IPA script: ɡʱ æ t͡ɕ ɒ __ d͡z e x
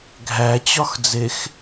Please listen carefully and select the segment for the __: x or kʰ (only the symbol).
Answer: x